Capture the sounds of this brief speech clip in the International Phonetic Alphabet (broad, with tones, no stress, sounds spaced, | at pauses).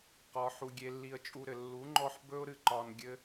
q ɒ˧ ħ u˧ ɡʲ e˧ lː i˧ ə̯ t͡ʃʼ u˧ ɾ ɘ˨ lː u˨˦ ŋ͡ǃ ɔ˧ ħ b ɵ˦ ʊ̯ ɾ ɨ˧ ǃ ɒ˧ n ɡʲ ɘ˧